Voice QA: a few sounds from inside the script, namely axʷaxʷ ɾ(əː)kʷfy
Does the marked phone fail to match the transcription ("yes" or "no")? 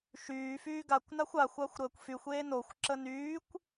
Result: no